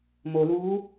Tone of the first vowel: low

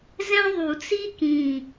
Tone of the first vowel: high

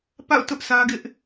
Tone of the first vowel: falling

